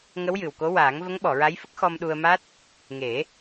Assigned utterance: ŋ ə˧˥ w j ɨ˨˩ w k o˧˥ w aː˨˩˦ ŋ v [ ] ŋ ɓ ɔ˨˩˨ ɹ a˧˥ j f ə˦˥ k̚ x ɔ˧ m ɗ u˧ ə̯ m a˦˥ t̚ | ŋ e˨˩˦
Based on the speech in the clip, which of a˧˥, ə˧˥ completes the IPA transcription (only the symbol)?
ə˧˥